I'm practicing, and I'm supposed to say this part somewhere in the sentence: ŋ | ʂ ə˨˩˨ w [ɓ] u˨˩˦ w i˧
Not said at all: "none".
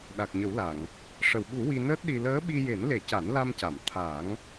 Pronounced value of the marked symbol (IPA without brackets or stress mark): ɓ